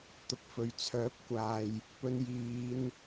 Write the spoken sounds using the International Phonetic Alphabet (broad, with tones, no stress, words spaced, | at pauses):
t̪ʊ˧k̚fɵ˨ɥ t͡sʰœː˨˥p̚kʷaː˨j | pɵ˧njiː˨˧n